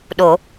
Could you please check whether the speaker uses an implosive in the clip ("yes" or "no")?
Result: yes